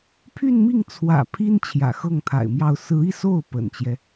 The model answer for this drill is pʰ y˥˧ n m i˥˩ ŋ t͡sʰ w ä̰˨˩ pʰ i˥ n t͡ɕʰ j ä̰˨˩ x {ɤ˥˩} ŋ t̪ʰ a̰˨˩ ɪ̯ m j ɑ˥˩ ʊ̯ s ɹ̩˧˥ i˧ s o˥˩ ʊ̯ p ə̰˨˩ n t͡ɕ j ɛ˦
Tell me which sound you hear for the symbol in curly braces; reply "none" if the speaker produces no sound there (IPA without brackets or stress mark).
ɤ˥˩